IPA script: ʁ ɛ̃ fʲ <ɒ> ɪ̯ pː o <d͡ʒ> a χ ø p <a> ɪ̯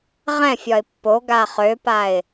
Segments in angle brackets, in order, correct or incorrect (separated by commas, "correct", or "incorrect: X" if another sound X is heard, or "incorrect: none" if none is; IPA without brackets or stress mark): correct, incorrect: ɡ, correct